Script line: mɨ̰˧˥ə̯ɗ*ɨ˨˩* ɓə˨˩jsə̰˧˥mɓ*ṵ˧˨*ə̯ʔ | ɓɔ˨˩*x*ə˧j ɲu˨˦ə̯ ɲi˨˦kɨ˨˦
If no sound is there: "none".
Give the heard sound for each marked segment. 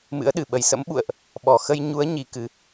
ɨ˨˩, ṵ˧˨, x

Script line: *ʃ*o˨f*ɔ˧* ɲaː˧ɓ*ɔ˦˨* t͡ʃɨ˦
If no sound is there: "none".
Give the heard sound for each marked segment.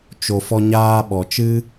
t͡ʃ, ɔ˧, ɔ˨

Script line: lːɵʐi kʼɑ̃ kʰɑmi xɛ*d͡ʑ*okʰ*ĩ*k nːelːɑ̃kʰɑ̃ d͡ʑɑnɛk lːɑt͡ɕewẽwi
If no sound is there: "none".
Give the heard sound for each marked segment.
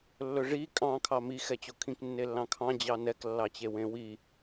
t͡ɕ, ĩ

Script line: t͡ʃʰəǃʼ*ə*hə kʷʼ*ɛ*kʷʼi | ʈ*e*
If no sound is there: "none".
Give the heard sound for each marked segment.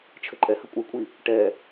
ɛ, ɘ, ɛ

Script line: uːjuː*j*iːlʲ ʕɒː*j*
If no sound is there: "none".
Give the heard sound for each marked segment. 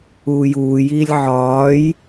j, j

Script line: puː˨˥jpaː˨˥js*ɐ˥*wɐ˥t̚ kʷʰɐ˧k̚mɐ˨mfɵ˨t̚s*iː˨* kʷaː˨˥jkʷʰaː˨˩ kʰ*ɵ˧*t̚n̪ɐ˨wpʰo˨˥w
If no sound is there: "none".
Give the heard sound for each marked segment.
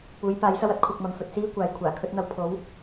ɐ˥, iː˥, ɵ˧

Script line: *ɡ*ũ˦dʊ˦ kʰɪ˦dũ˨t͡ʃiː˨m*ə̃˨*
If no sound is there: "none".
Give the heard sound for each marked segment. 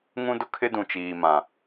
ŋ, ã˨

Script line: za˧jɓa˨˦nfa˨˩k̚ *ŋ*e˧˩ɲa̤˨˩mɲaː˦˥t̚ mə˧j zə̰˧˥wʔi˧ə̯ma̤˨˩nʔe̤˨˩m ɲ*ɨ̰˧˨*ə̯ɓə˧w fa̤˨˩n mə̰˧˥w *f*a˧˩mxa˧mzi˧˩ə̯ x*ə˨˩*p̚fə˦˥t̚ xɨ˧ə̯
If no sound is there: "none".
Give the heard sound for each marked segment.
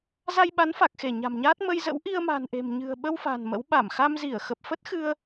x, ɨ̤˨˩, ɓ, ə˨˩

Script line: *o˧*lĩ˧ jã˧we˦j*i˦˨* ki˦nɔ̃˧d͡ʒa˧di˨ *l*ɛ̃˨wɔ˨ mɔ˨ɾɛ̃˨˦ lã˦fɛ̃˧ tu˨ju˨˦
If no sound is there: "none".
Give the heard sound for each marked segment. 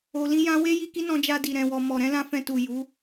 o˨, i˧, ɾ

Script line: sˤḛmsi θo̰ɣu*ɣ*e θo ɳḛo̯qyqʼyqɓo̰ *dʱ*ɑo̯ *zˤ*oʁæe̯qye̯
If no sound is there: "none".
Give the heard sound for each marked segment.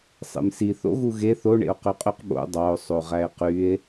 ɣ, dˤ, sˤ

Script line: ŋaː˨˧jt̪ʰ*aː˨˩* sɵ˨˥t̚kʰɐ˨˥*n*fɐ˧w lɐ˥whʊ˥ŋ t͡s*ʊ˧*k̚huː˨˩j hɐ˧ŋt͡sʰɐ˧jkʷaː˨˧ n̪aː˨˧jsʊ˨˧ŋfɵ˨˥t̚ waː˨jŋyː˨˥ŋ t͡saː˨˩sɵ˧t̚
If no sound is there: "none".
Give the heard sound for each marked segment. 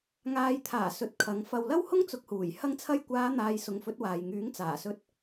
aː˨˩, ŋ, ʊ˧

